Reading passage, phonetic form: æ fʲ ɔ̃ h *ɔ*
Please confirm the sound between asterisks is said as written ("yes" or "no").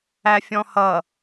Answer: no